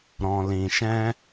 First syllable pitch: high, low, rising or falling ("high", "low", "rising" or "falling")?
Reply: low